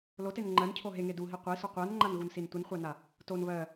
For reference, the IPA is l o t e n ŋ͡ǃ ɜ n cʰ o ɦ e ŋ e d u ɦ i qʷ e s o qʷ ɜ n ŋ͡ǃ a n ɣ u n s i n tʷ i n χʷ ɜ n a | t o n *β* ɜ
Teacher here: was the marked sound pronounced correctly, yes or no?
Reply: yes